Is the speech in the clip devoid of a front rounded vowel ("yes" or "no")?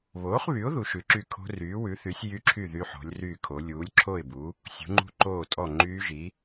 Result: no